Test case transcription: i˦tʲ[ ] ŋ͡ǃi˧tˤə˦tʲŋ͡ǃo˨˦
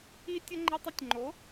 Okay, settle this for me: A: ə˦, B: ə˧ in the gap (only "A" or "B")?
A